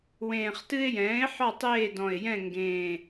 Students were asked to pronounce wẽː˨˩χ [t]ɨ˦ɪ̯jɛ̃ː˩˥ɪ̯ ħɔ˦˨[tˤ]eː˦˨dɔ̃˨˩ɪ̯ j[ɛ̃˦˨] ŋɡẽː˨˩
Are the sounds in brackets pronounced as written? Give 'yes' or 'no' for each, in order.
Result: yes, yes, yes

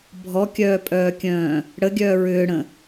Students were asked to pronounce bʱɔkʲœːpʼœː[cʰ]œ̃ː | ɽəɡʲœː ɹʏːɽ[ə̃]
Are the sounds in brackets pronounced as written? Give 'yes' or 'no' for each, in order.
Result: no, yes

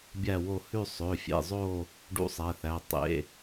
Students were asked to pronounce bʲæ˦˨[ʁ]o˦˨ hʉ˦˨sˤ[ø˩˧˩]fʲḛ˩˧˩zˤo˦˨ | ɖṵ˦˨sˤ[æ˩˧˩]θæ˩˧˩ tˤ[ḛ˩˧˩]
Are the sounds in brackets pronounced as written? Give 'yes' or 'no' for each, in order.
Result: no, yes, yes, yes

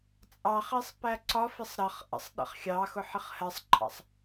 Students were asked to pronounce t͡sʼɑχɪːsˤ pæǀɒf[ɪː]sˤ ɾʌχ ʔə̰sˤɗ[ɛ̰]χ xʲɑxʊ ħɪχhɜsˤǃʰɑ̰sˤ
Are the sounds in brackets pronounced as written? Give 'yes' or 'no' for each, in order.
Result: no, no

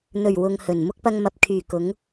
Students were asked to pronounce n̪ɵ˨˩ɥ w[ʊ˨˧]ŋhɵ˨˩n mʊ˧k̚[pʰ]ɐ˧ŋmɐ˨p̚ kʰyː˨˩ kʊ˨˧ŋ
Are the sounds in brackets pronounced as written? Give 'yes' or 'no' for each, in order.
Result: no, no

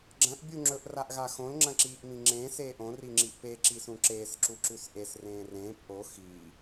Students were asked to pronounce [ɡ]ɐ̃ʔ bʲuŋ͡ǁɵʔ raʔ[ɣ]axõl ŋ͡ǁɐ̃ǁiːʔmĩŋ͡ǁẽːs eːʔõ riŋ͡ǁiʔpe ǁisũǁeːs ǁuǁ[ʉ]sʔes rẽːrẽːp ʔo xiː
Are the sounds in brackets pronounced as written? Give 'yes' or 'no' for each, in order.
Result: no, yes, yes

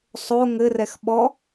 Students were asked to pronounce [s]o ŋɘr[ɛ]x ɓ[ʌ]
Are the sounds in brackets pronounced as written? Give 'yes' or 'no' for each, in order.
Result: no, yes, no

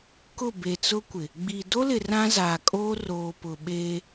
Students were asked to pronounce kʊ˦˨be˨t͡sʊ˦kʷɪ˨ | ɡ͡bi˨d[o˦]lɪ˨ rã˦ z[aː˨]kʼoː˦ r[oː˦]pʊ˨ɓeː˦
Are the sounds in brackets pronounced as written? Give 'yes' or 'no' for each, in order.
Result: yes, yes, no

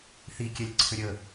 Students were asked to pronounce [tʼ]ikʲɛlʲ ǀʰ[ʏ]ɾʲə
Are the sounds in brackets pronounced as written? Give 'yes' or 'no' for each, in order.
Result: no, yes

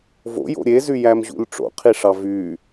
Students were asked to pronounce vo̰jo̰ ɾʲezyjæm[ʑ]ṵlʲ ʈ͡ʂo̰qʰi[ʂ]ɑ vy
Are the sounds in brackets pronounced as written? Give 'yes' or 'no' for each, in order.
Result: yes, yes

